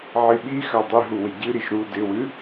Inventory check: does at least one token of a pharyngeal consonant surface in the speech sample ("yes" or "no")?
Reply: yes